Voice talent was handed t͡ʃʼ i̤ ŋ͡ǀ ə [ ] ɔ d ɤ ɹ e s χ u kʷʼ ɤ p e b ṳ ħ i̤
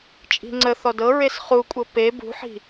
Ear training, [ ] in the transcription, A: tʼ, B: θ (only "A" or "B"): B